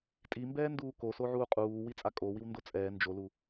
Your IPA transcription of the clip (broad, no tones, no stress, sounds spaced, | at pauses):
tʼ i m b ɛː n d uː k o s o ʕ uː qʼ uː w i t͡sʼ a kʼ o w i w n d o t͡sʼ ɛː n d͡ʒ o l u